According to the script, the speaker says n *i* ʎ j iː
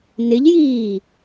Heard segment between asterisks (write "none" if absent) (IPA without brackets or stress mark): ɪ